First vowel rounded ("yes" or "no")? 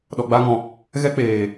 yes